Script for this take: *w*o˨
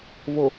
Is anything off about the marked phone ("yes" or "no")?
yes